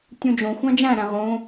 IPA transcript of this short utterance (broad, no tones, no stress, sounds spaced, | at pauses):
tʲ ũ d͡ʒ õ xʷ æ̃ d͡ʒ æ̃ ɾ æ̃ ʁ õ